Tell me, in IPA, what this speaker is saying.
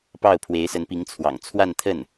p ɑ˥˩ ʊ̯ pʰ w e˧˥ ɪ̯ s ə˧˥ n p i˧˥ ŋ t͡sʰ w ɑ̰˨˩ ŋ t͡sʰ w a˥˧ n t̪ʰ ə˥˩ n

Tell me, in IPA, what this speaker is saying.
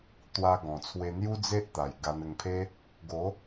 t̪ w a˧ ɡ ɔ̃˨˩ t͡sʰ w e˧ n̪ j u˦ d͡z e˦ ʔ t̪ a˨˩ j ɡ a˧ n ə˧ ŋ pʰ e˦ | ɡ o˨˦

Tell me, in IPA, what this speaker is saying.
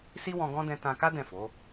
s i˦ w ɔ̃˧ ɡ ɔ̃˦ d ɛ̃˧ t ã˧ k a˦ d ɛ̃˦˨ f o˨˦

